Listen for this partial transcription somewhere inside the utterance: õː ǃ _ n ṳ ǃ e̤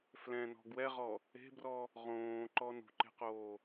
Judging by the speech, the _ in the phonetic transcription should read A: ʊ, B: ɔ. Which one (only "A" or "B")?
B